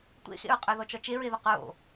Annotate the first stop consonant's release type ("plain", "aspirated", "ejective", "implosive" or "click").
plain